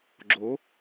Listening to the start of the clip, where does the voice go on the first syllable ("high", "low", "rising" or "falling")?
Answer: rising